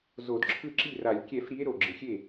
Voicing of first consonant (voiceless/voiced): voiced